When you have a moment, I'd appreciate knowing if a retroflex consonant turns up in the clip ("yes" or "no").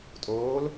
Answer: no